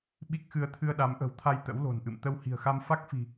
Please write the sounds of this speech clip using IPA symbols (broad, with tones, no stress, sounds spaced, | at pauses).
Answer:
ɓ i˦˥ k̚ x ɨ˧ ə̯ t̪ʰ ɨ˧ ə̯ ɗ a˨˦ m ʔ ə̤˨˩ w t̪ʰ a˧ j t̪ ə̰˧˥ w l o̤˨˩ n ʔ ɨ̰˧˨ m t̪ ə˧ w h i̤˨˩ ə̯ x a˧ m f a˦˥ k̚ f i̤˨˩